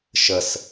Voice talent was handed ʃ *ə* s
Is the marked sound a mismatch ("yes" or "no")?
no